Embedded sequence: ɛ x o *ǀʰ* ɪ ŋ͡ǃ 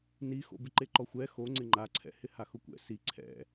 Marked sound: incorrect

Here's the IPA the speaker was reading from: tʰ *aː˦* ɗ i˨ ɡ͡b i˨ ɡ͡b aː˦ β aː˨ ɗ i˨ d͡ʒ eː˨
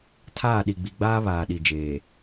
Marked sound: incorrect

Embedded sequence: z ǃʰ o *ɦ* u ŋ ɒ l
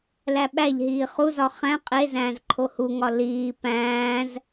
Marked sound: incorrect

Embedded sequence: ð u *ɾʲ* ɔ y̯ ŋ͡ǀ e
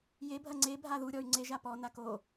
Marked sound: correct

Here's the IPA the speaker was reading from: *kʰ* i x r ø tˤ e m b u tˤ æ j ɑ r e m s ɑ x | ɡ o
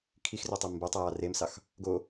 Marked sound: correct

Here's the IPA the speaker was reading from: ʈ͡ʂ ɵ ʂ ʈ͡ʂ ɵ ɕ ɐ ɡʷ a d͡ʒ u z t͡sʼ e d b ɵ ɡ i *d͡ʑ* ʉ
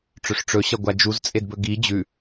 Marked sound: correct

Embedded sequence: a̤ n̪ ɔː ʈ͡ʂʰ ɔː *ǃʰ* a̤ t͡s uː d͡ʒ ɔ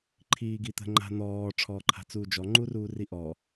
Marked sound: correct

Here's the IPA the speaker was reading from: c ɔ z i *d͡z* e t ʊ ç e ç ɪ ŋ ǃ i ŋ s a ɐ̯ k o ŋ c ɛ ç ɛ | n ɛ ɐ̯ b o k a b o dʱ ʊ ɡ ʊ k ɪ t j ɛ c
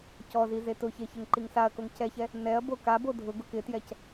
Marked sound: incorrect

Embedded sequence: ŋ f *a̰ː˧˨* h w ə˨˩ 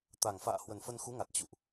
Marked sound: correct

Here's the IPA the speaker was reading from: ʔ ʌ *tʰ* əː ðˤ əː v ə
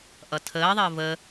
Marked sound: correct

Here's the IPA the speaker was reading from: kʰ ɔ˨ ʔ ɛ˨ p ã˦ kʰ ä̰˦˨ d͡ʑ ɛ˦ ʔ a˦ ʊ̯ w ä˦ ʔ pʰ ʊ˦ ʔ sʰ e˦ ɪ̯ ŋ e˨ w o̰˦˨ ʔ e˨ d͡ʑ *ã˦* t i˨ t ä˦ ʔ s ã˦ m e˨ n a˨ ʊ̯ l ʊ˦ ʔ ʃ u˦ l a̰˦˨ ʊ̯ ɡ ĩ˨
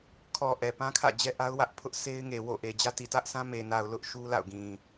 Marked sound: incorrect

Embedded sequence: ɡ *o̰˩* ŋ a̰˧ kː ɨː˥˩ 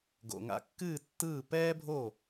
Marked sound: correct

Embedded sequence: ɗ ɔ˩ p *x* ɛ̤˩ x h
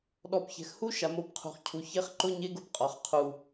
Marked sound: incorrect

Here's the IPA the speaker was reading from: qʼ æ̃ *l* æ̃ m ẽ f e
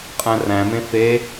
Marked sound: incorrect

